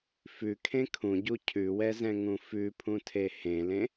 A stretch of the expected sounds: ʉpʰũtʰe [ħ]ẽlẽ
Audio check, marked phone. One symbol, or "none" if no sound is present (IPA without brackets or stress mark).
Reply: h